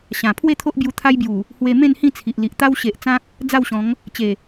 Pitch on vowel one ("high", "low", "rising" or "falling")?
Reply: low